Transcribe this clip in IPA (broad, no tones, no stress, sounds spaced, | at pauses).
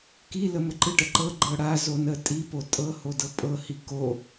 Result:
k i l ə m ə ǃ ɯ ʈ ə ǃ ɤ ɡ͡ǃ ɤ ɽ a z o n ə tʼ i p o tʼ ɤ h o d ɤ pʼ ɤ h i k o